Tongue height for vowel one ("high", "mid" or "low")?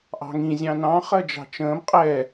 low